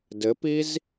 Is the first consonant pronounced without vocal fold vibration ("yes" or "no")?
no